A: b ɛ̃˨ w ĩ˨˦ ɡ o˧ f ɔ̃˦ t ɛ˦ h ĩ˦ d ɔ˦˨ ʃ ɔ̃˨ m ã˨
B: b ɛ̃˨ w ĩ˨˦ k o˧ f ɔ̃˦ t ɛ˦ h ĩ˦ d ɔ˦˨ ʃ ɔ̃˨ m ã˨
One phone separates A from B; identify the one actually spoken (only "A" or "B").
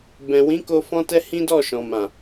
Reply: B